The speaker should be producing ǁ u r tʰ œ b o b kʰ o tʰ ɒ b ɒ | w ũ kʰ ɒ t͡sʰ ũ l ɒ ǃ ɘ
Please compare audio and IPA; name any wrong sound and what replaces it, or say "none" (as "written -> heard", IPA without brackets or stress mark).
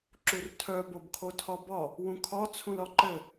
none